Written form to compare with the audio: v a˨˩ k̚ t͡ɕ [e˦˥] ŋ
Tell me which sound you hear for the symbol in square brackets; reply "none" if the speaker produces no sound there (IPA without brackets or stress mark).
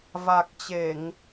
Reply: e˧˩˨